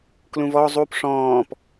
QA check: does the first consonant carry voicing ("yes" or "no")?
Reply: no